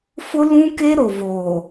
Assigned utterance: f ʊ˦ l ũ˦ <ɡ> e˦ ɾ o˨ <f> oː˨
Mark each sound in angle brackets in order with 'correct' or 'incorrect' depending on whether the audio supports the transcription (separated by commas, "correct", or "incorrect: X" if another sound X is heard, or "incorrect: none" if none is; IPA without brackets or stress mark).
incorrect: k, incorrect: v